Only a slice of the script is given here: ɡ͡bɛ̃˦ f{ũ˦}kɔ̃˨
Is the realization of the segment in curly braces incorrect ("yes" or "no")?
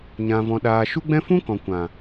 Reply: no